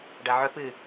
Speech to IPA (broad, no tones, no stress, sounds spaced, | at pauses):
ɖ ɐ ʕ ɵ p ɨ